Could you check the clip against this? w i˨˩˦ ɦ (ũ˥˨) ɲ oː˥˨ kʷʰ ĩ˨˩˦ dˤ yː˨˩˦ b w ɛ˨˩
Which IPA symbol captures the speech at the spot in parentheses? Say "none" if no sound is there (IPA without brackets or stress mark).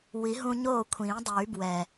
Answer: ũ˧